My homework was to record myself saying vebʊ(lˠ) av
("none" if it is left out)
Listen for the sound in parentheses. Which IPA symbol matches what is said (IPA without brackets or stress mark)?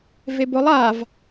lˠ